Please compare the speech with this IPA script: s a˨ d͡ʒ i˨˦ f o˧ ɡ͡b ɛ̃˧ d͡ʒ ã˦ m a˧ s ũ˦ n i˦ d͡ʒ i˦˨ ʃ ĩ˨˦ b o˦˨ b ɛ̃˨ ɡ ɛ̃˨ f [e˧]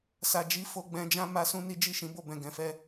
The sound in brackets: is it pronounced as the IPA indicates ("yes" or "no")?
no